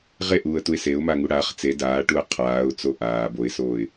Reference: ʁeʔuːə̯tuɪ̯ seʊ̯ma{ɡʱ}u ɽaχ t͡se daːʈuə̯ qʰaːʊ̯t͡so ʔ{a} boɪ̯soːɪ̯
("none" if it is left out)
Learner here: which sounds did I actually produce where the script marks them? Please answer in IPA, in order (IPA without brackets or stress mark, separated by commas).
ŋ, aː